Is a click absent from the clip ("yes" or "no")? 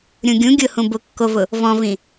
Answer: yes